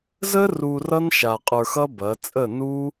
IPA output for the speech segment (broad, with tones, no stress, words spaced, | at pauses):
zə˦ ru˧rʌ˦n ʃa˨ qʼə˞˧xʌ˦bɐ˨˦ t͡sʼə˦˨nu˦